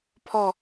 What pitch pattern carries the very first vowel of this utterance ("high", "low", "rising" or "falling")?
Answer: falling